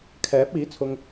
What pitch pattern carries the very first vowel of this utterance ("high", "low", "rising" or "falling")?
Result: rising